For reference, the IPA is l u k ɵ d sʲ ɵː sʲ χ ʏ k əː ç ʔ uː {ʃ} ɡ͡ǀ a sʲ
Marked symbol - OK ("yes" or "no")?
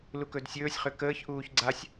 no